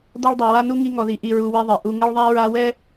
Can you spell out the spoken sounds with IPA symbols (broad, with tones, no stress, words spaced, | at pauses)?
dɔ˦ɭdˤu˨ wa˦nu˦ ŋi˦ŋɔ˨ði˨ ʔi˦ɹu˦wi˦ðˤe˨ ʔu˨ŋɘ˦ɭðˤa˦ ɹa˦wɛ˦